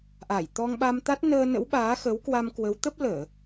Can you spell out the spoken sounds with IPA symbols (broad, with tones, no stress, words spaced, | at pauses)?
ʔa˧˩jt̪ɔ˧ŋɓa˧m t̪a˦˥t̚nəː˧nə̰˧˥w ɓaː˨˦xə˨˦wkwa˧mkwə˨˦w t̪ə˦˥p̚ ləː˧˩˨